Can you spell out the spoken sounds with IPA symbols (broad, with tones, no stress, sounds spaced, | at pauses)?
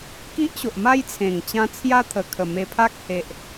k i˦ ʔ ɕ o˨ ʔ m a˦ j t͡sʰ ẽ˨˩ ŋ t͡ɕ ã˧ t͡sʰ j a˦ t̪ʰ ə˨˩ kʰ ə˨˩ m e˧ pʰ a˦ k̚ h e˨ ʔ